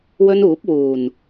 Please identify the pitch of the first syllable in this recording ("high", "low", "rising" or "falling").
high